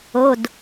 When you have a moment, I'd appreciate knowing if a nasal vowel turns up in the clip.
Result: no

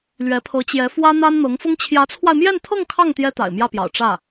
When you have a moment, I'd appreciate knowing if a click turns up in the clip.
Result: no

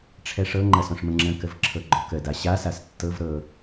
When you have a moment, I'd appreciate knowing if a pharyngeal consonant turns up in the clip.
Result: no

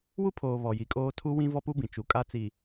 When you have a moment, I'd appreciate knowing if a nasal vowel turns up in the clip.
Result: yes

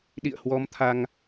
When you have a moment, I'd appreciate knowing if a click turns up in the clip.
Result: no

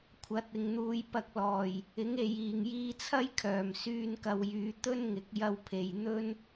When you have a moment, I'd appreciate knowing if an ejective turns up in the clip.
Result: no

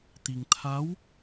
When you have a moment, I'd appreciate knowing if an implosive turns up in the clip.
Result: no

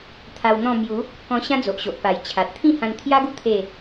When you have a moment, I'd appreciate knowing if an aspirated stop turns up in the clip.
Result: yes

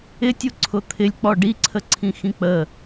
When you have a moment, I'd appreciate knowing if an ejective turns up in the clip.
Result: no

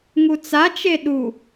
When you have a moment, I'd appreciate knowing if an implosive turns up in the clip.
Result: yes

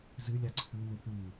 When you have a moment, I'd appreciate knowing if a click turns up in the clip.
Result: yes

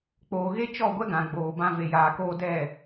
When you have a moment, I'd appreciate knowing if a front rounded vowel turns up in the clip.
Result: no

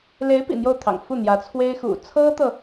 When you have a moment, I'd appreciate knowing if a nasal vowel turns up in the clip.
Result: no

